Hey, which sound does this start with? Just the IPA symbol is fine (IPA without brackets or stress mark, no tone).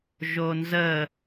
ʒ